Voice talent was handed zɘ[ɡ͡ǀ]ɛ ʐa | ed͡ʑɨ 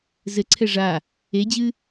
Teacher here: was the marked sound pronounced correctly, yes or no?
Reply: no